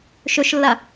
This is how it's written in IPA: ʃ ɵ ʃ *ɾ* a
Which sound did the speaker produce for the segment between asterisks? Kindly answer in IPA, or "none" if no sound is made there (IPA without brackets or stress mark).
lː